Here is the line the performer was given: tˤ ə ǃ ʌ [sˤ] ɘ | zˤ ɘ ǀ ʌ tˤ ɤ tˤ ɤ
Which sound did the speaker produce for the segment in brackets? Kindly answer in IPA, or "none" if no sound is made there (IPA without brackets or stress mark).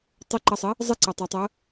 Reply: sˤ